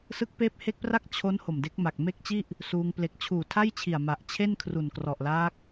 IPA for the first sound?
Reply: s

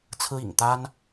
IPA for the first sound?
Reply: t͡sʰ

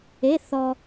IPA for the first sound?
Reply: e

